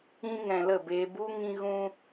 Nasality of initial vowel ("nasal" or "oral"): nasal